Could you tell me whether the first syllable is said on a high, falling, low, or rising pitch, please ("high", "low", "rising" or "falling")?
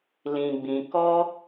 low